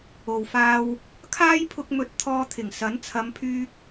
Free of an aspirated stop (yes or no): no